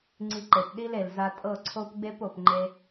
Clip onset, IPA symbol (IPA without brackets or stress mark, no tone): ŋ͡ǀ